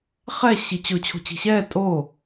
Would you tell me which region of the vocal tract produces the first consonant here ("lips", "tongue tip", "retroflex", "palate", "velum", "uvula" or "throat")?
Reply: uvula